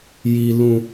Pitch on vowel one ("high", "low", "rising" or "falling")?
low